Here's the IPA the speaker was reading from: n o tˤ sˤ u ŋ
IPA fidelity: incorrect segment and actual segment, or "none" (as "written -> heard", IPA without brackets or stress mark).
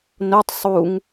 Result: none